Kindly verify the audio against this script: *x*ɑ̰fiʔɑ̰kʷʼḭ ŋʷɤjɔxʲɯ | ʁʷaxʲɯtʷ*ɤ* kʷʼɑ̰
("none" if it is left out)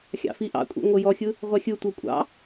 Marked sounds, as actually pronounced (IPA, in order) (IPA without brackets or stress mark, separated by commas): xʲ, ɤ